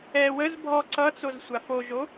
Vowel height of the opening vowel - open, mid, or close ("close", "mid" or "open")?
mid